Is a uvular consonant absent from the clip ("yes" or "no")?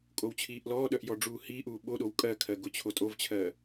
yes